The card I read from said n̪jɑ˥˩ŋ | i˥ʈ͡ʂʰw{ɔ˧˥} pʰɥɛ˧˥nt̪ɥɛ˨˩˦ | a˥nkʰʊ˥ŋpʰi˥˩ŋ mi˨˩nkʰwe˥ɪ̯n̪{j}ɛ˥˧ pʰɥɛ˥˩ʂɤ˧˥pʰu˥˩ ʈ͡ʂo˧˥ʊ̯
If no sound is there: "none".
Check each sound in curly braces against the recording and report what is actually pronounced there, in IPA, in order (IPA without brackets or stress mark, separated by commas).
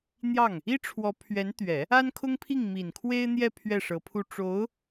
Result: ɔ˧˥, j